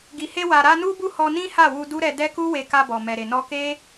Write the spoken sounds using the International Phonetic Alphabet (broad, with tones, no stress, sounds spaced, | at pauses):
ɡ i˨ h e˧ w a˨ ɾ a˧ n u˦ b u˦˨ h ɔ˧ n ĩ˦ h a˦˨ w u˧ d u˦ ɾ ɛ˧ d ɛ˦ k u˦ w e˧ k a˧ b ɔ˨ m ɛ˨ ɾ e˨ n ɔ˧ k e˦